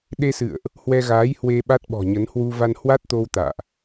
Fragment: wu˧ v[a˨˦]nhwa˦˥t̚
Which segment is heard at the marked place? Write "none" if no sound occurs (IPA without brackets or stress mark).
a˧